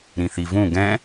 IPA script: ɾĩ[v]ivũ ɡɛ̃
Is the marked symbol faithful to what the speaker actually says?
no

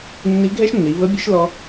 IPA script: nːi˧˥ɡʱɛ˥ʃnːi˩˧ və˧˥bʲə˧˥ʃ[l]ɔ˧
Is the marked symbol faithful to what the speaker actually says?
yes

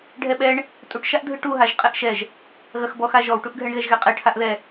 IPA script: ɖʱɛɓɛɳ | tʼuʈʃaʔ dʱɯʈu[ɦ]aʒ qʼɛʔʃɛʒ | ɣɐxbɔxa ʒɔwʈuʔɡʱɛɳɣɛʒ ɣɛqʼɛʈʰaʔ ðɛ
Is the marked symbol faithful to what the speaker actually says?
yes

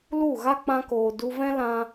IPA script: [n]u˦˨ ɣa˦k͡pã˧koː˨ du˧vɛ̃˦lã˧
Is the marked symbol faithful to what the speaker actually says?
no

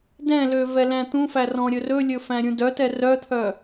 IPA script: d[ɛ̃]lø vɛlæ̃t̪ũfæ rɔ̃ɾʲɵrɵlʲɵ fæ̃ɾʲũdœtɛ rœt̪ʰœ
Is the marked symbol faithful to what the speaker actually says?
yes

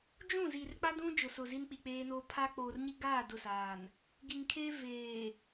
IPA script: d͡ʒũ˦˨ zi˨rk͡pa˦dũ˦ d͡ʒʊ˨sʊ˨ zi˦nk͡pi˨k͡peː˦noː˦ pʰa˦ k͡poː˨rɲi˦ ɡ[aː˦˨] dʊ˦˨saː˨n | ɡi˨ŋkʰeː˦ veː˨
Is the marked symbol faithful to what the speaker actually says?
yes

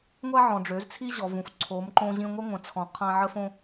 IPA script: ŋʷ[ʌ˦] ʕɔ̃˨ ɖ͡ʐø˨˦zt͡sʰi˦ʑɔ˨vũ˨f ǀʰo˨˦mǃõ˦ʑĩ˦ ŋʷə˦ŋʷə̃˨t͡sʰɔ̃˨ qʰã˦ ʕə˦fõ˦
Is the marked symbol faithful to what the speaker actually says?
no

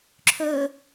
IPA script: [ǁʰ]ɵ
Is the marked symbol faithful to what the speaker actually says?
yes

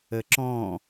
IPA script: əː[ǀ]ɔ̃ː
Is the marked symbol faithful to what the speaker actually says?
no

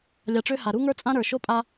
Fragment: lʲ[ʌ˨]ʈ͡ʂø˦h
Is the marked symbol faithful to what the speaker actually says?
no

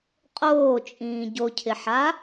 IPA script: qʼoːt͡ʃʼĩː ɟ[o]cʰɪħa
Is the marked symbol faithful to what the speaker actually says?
yes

